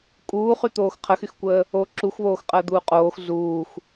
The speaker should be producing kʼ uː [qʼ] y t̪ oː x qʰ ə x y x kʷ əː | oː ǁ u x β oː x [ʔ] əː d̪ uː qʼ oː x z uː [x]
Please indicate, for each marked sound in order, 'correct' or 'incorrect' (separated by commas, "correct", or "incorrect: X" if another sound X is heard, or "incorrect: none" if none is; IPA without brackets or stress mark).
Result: incorrect: χ, incorrect: qʼ, correct